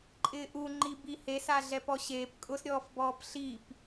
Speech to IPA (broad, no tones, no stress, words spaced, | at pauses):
ǃʼɪːʔuŋ͡ǃi bihesa ɮɛpɔɕeːp kʼʊsɾʲɔːfbɔːp ɬip